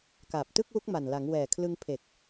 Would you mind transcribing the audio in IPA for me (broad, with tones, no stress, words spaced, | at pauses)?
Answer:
kaː˨˩p̚tɯ˥˩k̚wu˦˥k̚ma˨˩n la˩˦ŋwɛː˨˩ kʰlɯ˧ŋpʰe˨˩k̚